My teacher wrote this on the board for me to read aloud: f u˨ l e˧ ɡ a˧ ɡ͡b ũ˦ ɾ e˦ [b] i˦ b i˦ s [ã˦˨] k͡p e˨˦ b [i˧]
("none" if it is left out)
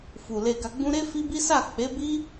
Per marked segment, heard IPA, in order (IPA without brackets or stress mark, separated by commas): f, a˦˨, i˦